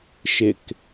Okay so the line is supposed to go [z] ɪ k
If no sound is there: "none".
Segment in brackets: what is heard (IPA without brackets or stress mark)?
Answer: ʃ